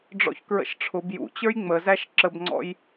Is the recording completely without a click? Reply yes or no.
no